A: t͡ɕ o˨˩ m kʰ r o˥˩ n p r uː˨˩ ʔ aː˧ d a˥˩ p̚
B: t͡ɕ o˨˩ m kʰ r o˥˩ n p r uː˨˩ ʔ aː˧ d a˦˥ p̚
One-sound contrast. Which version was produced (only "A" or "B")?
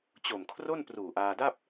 A